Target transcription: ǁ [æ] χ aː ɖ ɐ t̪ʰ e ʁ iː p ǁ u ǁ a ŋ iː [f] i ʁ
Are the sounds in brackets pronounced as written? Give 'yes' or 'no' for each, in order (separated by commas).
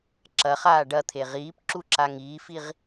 no, yes